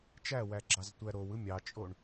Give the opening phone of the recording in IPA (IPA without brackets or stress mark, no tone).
t͡ʃ